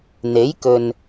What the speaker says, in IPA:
n̪e˨˥jkɵ˨n

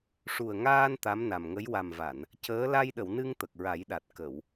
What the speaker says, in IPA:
ʂu˨˩ə̯ŋaː˧n t̪a˧˥mna˨˩mŋə˧˥j wa˨˩mva˨˩˨n | cəː˧˥ la˧jɗə˨˩˨wnɨ˧ŋ t̪ə˨˩k̚ɹa˨˩˦jɗa˨˩t̚ kə˨˩˨w

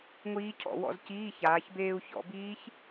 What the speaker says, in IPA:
ŋʷiː˦˥cʰɔ̰˩˧wɔ̰˧zciː˧˥˧ çaː˩˧çbeː˧u̯çɔ̰˩˧biː˦˥ç

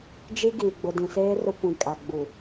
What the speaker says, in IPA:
d͡ʒi˦ɡiː˨ ɡ͡bʊ˨dĩ˨seː˦ rʊ˦kʷĩ˨ kʼa˨ɡ͡bu˨

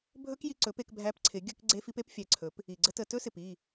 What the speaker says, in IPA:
bʱɵ˦kji˧ ǀɵ˨˦pe˧k bʱæ˦p ǀʰɪ˨˦ɡʲɵ˦k ɡ͡ǀe˦fi˦p e˦pfʲæ˧ǀʰɵ˨˦p | i˨ɡ͡ǀə˦tə˧ tɵ˦sɪ˨pi˦˨

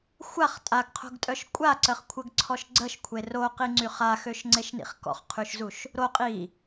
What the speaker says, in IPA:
xʷaχ tʼaɡqʰo̤ɡtʼœʃ kʷʼaǀəχkʷʰəɡǀʰɔʃ ɡ͡ǀəʃkʷʰe roqiŋ͡ǀy χaxøʃŋ͡ǀeʃnḭχ kɔ̰χqʰyʃzuʃ | ɾo qʼi

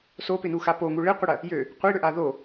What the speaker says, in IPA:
sopɪnuxa poŋu ɭɪqʷɪɽɐ | jø | qʷiɽʏʔa ðo

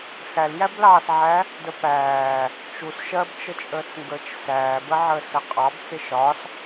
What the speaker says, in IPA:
xæljæblɑːsʕæ | dəpæː | t͡ʃus ʃɜbt͡ʃət͡ʃʼəːt͡sŋɡəːt͡ʃ sæːbəʕəː səqʼɑb t͡sɪʃɒs

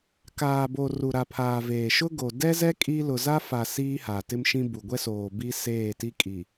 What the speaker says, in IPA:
kaː˨bo˨ ru˨ɾa˨pʰaː˨ veː˨ ʃʊ˦ ɡo˨ dɛ˦zɛ˦ kʼi˦ lʊ˨za˦fa˨ siː˦ha˨ tɪ˦mʃĩ˦bu˨ ɡʷɛ˦soː˨ bi˦ seː˦˨ti˦kʼi˨

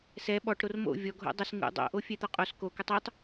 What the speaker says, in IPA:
sɛ ɓɔʈ ɾormo̰ vʲɔɡʱo̰ dˤʏs ŋṵ dˤo̰ʔo fʲɛt̪ɔqʼos kokʏtˤ utˤ

